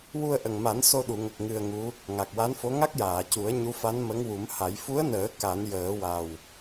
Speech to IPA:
wu˧ə̯ʔə˨˩ŋma˨˩˦n so˧ɗu˨˩˨ŋə˨˩k̚ ŋɨ˧ə̯ŋu˧˥ | ŋa˨˩k̚wa˧˥nfo˧˥ ŋa˦˥k̚jaː˨˩˨cu˨˩˦ə̯ ɲu˧˥fa˧˥nmə˧˥ŋwu˨˩˦m ha˨˩˦j fu˧˥ə̯nəː˨˩˦ ka˨˩˦njəː˨˩˦wa˨˩w

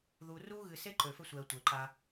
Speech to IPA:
ðu˧ru˦ɣɨ˧se˦ ǃø˧fɘ˦sʷɛ˧ə̯ tʷɘ˨ǃa˧

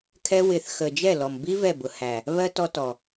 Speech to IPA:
kʰɛ˦ wɪ˨θxə˨ d͡ʒɛ˦˨lɔ˨mbi˦ vɛ˦˨bʊ˨hæ˨ | βɜ˦ tɔ˦tɔ˨

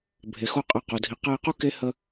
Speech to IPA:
bʱe˨xo˦qʼɛ˧qo˨ dʱi˨qɛ˧i̯qu˦ ke˦ hə˧

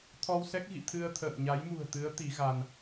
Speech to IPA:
t̪ʰɔ˧wsɛ˦˥k̚ɣḭ˧˨ t̪ʰɨ˧ə̯t̪ʰə̰ː˧˨mɲa˨˦j mṳ˨˩ə̯t̪ɨ˨˦ə̯ t̪i˨˦ɣa˧n

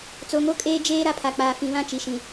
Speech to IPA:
t͡so˨ŋo˦kʼeː˦ d͡ʒeː˦ ɾa˦pʰa˨k͡paː˨ fĩ˨βã˦t͡ʃi˨ʃĩ˨

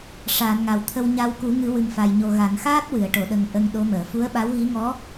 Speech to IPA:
ʂaː˨˩˨nŋa˨˩˨w t̪ʰə˧wɲa˧w ku˨˩˦ŋɨ˨˩˦ wɨ˨˩ŋfa˨˩jɲo˨˩ ɣa˨˩˨nxaː˦˥t̚ wɨ˨˩˨ə̯ʈo˨˩˨ɗə˨˩ŋ ʔə˧ŋɗo˧˥məː˨˩˨ fu˧˥ə̯ɓa˧˥wɣi˧˥ ŋɔ˧˥

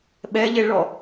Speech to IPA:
ɓɛʎeɭɔ

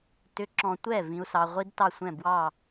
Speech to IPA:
tʏ˨˥ǁɔ̃˨tʷɛ˥˩ vĩ˨u̯sɑ˨ʁʷi˦˥d tɑ˥˩sʷɛ̃˥˩bwɑ˥˩

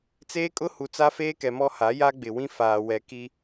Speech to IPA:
t͡seː˦kʼʊ˦hu˨ t͡sa˦feː˦kɛ˨mɔ˦ ha˨˦ja˦ɡ͡bɪ˨wĩ˦ faː˨wɛ˨ ki˦

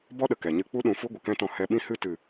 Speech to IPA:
bɔ˦ɗə˨ kɛ˨ɲɨ˦ k͡pu˦ɗũ˨fu˦ ɡʷə˨kɛ̃˦tɔ̃˧ hɛ˧ɓĩ˦hɨ˦ tɨ˨

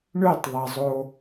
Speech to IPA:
ɳøtˤðˤɑzˤo

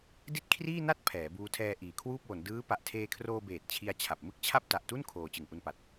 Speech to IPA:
di˥˩t̚kʰriː˥˩na˥˩t̚ pʰɛː˩˦buː˧tʰɛː˧ ʔiː˩˦kʰwuː˥˩p̚wo˩˦n dɯː˦˥ pa˨˩ʔtʰeː˧kʰroː˧beː˨˩t̚ t͡ɕʰi˧a̯t͡ɕʰa˨˩p̚mɯ˥˩k̚t͡ɕʰa˥˩p̚ ta˨˩ʔtu˥˩n kʰoː˧ t͡ɕɯ˨˩ŋʔu˧npa˨˩t̚

